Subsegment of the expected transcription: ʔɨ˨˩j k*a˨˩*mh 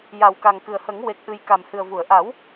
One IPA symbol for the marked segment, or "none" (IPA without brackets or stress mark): a˨˩